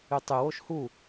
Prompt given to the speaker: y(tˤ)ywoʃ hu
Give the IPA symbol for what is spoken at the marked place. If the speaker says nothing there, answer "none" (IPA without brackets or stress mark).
tˤ